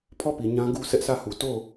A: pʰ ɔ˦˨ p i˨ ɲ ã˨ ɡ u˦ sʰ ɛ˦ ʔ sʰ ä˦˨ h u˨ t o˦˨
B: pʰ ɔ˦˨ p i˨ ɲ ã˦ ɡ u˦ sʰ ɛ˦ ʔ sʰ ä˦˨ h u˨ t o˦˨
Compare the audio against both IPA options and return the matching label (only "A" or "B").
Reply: B